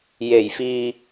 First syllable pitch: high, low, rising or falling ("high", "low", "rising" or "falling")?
low